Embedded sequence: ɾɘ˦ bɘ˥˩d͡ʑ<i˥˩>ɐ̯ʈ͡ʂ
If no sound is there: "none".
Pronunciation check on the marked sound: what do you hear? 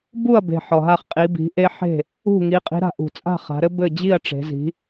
i˥˩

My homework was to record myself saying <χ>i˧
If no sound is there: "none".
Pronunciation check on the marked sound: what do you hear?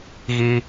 ɣ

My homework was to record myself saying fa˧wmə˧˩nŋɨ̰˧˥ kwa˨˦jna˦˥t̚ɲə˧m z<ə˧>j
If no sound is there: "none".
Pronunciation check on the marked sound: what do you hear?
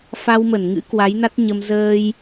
əː˧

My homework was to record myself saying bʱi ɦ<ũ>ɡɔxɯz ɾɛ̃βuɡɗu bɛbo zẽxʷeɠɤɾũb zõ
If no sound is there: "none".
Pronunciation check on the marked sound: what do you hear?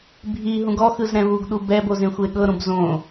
ũ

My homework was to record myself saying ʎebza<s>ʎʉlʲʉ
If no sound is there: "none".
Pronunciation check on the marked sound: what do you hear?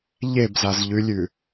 z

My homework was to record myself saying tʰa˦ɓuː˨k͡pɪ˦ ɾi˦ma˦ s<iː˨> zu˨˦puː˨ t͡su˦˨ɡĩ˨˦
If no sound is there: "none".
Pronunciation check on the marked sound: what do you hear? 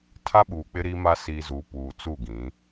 i˨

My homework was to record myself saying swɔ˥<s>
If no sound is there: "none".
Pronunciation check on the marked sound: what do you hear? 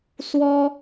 none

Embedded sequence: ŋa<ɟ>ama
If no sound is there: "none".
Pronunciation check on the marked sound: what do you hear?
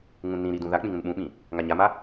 ɲ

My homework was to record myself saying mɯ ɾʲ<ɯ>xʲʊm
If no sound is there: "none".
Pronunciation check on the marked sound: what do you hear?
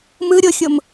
ʊ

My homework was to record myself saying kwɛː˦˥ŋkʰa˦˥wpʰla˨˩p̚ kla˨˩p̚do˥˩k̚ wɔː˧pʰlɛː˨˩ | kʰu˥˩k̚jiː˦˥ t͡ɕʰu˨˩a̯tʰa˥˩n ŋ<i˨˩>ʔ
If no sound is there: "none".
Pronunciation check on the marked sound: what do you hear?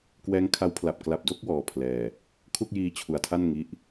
i˦˥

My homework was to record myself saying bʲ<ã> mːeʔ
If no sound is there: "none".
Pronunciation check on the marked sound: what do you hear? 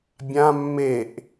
ã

